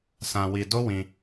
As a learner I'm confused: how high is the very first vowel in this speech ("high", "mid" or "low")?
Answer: low